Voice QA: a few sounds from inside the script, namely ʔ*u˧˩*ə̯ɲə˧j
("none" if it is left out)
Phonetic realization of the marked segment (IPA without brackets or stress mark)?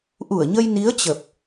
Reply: u˧˩